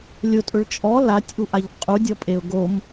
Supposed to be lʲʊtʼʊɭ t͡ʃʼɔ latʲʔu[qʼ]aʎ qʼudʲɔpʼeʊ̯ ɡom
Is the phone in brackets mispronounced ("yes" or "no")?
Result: yes